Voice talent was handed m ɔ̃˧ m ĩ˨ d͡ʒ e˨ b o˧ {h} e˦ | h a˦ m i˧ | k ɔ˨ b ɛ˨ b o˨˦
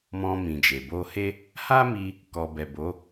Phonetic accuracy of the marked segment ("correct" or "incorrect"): correct